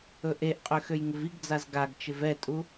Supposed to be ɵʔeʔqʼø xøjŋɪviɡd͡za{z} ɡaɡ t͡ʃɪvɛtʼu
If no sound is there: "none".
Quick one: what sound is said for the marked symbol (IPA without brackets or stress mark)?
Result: z